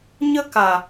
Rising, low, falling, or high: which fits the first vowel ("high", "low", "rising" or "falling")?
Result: high